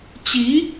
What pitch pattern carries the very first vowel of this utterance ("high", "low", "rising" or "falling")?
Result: rising